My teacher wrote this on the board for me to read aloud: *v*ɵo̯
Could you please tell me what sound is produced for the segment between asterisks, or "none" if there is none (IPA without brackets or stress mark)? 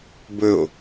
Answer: b